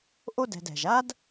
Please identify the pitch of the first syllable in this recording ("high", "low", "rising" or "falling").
high